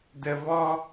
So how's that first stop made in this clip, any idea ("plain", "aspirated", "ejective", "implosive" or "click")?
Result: plain